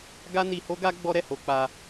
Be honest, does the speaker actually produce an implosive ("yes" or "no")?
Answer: no